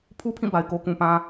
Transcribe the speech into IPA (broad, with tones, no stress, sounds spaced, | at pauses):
pʰ u˦ pʰ ĩ˦˨ b a˨ ɪ̯ k o˦ k ũ˨ p ã˦